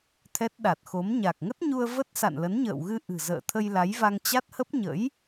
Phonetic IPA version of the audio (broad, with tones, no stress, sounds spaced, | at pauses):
t̪ʰ ɛ˦˥ t̚ ɗ a˨˩ t̚ x o˨˦ m ɲ a˨˩ k̚ ŋ ə˦˥ t̚ ɲ u˧ ə̯ v ə˦˥ t̚ s a̰˧˨ n l ə˨˦ n ɲ ə̰ː˧˨ w ɣ ɨ˧ ʔ ɨ̤˨˩ z ə̰ː˧˨ t̪ʰ ə˧ j l a˨˦ j v a˧ ŋ t͡ɕ a˦˥ t̚ h ə˦˥ p̚ ɲ ə̰˧˥ j